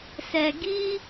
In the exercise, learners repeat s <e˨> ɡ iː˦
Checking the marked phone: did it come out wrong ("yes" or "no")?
yes